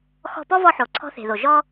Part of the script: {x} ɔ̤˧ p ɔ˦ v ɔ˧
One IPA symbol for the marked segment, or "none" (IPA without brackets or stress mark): x